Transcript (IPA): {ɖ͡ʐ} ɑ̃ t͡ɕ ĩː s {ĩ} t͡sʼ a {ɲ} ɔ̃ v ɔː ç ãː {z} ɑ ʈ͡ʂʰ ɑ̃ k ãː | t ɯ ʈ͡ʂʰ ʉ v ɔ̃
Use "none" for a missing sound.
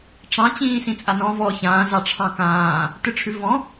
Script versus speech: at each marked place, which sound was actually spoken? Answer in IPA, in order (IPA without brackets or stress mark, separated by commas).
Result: ʈ͡ʂ, ĩ, n, z